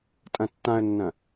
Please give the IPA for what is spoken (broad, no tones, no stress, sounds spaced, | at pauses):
tʼ ɐ̃ tː ã ə̯ nː ɐ̃